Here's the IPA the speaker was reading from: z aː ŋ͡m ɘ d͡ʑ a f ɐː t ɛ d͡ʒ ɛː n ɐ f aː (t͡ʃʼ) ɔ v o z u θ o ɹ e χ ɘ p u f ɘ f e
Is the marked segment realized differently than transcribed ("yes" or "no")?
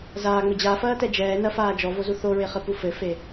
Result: yes